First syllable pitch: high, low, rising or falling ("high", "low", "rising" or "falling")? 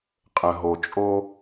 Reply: low